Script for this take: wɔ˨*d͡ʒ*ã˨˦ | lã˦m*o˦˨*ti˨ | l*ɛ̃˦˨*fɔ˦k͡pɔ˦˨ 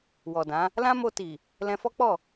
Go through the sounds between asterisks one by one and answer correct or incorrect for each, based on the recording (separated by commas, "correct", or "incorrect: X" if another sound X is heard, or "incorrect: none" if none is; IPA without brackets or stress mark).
incorrect: d, incorrect: o˧, incorrect: ɛ̃˧